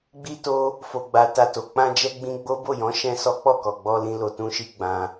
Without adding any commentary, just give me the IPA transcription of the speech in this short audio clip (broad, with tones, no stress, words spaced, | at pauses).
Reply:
ɡ͡bi˦to˦ | fo˨ɡ͡ba˨ ta˧to˨ k͡pã˧d͡ʒɛ˧ɡ͡bĩ˧ ɡ͡bo˦ bo˦˨jɔ̃˨˦ ʃɛ̃˦sɔ˦ k͡pɔ˦˨kɔ˨ɡ͡bɔ˧lĩ˧ lo˧tũ˦ʃi˦ ɡ͡bã˧